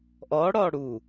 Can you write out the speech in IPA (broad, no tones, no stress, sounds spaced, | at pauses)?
ʔ ɔ ɽ ɔ ɽ u